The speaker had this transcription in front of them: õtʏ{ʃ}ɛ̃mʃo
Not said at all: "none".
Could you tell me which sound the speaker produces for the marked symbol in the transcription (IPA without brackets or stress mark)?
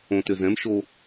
z